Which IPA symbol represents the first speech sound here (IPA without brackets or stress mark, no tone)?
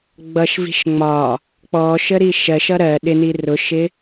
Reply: ɡ͡b